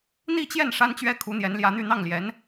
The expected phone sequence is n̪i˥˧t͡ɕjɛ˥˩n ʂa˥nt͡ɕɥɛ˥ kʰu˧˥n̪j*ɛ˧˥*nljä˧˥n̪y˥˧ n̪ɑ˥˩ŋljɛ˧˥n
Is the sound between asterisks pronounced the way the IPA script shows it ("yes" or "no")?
yes